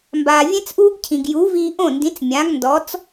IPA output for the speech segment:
mbaː˩vʲẽ˥t͡sʔuː˥ɡcʰĩ˩ɡ ju˩˥ viː˧ʔõ˥˩ndĩ˩˥t͡s mʲã˩˥ɡndɔ˩˥t͡s

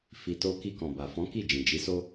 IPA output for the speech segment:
fi˨to˧ ki˧kɔ̃˨ba˨fɔ̃˨˦ ki˦˨d͡ʒĩ˨d͡ʒi˨˦so˦

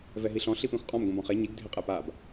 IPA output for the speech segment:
vɛɦiɬɔ̃ ɬipẽxʷqʼɔ̃m ɡʷĩbɔ̃χe ɲiɡ dʱeqʼɛpab

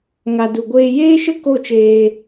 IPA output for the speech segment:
ŋa˨du˨ɡʷeː˧ jeː˦ʃə˦ ko˦˨t͡ʃeː˧

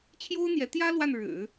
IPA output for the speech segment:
t͡ɕʰjo˥ʊ̯n̪jɛ˧˥t̪jä˥ lwa˥˩n ɻɻ̩˨˩˦

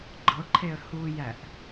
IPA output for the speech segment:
ɡ͡ǃɤǃʰeə̯ hujæʔ

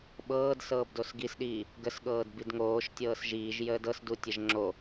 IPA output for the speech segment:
ɓɤːd sɤːbdosɡisɗiː | ɡəsɠɤːd bidŋoːʃ tʲɤːsʒiːʒ jəːdɤsdu tʲəʒŋ͡ǁo

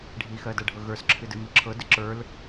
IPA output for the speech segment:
ɖʱixɜdɜɖʱɤ ɣə˞sǁʰɨdɨmɨ ǁʰɤdɨ ǁə˞l

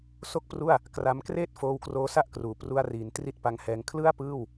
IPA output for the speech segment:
so˥˩k̚pru˥˩a̯ | kra˧mkreː˥˩t̚ foː˧wkroː˦˥sa˥˩ʔkruː˨˩ pru˧a̯riː˩˦n tri˦˥t̚pa˧ŋhɛː˧ŋ kʰlɯ˥˩a̯pɯː˥˩w

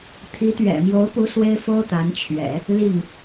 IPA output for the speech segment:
t̪ʰi˧˥t̪ɥɛ̰˨˩mjo˧˥ʊ̯pu˧˥ swe˥ɪ̯fo˥ʊ̯t̪a˧˥nt͡ɕʰɥɛ̰˨˩˦ | li˥˩ŋ

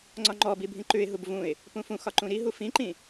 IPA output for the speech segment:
ŋ͡ǀɒŋ͡ǃɔbi bʱĩǃʉɪ̯ɦub vũɪ̯ | pũfũxɒ ǃũɾiɦu fĩǃĩ

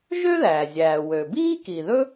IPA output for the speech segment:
ʒø˥ðæː˩ zʲæː˩wø˩biː˥ ki˩ðɵ˥

